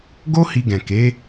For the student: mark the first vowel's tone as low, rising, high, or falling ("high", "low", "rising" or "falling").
high